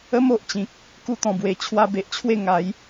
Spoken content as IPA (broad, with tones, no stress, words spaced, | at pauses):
ə˦m o˨ʔt͡ɕĩ˨k̚ | ku˦t̪ɔ̃˨˩bwe˨˩ t͡ɕʰwa˧be˨ʔt͡ɕʰwe˥˧ ŋa˨˦j